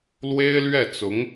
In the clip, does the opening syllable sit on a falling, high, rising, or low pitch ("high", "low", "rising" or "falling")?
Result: high